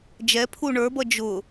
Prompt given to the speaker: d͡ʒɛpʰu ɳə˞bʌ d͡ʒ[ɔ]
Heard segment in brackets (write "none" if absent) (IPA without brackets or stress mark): ʊ